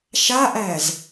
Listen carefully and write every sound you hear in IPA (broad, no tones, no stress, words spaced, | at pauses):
ʃaʔæz